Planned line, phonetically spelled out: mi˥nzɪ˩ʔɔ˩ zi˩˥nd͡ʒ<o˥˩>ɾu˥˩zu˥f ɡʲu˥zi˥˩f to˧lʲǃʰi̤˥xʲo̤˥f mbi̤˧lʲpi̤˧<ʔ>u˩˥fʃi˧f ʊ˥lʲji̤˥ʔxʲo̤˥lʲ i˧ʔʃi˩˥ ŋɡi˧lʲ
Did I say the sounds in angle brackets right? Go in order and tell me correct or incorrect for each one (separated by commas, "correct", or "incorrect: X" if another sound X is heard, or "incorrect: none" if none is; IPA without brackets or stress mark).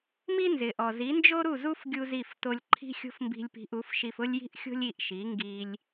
incorrect: o˥, correct